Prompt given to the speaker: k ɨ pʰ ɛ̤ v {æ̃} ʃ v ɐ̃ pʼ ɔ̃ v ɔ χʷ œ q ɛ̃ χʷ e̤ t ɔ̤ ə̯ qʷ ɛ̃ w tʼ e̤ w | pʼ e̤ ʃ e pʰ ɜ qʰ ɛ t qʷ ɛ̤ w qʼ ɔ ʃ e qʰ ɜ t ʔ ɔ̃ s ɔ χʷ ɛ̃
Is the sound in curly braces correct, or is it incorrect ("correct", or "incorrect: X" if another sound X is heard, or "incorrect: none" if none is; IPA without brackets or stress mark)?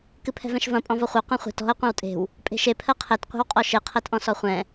incorrect: ɛ̃